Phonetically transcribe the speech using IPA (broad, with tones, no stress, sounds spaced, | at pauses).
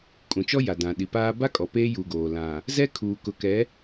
kʼ ũ˨ t͡ʃ ɔ˦ j a˨ d ã˨ ɗ i˨ p aː˦ b a˦ kʼ ɔ˨ p eː˦ j u˨ ɡ oː˨ l ã˨ | z ɛ˦ kʰ uː˨ k ʊ˨ k ɛ˨˦